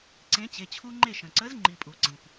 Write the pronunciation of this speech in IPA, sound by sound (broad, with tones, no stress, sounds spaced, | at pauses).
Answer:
ǀ ẽ˨˥ t͡ɕ e˩˧˩ t͡ɕʰ u˦ ŋ͡ǃ e˥˩ ʃ ə̃˩ ǀ ə˨˥ z ŋ͡ǃ i˩ pʼ u˩ ǀ ĩ˩ p